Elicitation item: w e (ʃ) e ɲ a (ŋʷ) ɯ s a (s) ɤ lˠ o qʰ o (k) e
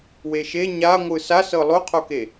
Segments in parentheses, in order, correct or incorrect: correct, correct, correct, correct

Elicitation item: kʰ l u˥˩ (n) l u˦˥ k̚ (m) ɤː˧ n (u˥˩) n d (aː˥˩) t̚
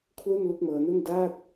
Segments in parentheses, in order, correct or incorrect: correct, correct, correct, correct

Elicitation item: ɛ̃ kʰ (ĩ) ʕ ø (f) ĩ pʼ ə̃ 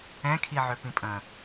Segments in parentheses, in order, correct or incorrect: incorrect, incorrect

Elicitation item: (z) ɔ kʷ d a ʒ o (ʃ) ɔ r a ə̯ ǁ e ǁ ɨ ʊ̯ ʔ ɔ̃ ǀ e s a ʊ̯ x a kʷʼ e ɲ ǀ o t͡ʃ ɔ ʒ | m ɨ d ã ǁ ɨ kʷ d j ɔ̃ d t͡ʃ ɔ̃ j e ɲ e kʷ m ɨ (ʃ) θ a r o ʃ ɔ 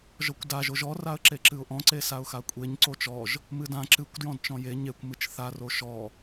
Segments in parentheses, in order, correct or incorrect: incorrect, incorrect, incorrect

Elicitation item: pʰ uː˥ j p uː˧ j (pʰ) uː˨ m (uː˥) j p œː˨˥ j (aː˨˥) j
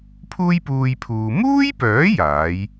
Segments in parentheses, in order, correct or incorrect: correct, correct, correct

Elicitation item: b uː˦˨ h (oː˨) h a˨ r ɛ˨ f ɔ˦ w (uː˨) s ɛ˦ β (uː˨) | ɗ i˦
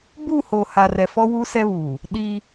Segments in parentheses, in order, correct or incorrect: correct, incorrect, correct

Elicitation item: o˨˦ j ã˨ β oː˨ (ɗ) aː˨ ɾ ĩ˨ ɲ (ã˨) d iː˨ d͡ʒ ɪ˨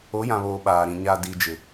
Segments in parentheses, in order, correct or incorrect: incorrect, incorrect

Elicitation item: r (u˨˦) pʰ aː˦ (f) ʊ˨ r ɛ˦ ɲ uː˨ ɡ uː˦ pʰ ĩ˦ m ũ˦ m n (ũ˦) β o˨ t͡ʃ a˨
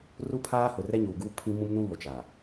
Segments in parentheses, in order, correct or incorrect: incorrect, incorrect, correct

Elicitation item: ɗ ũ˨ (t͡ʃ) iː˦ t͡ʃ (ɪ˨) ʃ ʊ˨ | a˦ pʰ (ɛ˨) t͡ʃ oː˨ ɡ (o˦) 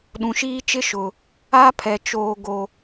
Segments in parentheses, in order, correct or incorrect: incorrect, incorrect, correct, incorrect

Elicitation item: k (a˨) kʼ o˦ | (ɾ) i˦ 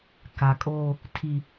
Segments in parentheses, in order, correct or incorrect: correct, incorrect

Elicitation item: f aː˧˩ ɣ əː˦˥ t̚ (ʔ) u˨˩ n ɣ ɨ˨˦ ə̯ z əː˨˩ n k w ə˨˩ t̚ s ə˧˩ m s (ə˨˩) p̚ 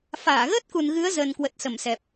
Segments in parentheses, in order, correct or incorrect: incorrect, incorrect

